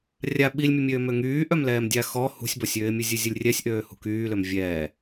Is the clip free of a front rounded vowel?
no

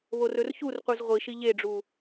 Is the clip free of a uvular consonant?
no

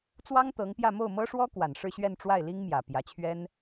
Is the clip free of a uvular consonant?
yes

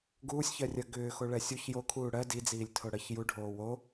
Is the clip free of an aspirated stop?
no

